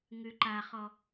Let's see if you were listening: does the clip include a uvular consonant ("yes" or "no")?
yes